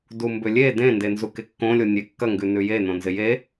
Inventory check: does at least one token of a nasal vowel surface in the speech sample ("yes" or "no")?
yes